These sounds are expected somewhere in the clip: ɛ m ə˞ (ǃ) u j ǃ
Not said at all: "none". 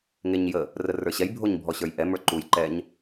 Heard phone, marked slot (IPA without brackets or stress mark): ǃ